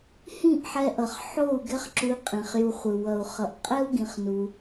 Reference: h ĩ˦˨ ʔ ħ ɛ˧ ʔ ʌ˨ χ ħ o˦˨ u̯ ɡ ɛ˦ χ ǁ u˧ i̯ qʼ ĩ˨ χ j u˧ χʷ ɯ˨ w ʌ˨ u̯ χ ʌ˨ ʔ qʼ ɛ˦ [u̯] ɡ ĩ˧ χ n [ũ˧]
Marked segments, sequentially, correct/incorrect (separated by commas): correct, incorrect